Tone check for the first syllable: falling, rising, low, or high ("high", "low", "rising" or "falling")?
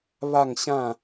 falling